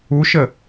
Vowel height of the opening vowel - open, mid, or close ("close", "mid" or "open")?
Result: close